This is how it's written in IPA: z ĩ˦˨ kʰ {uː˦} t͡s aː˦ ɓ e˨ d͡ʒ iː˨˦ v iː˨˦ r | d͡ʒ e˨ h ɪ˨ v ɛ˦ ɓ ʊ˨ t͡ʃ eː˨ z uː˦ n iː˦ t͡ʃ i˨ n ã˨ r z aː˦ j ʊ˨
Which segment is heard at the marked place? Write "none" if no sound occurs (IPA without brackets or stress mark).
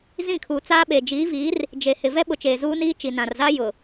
uː˨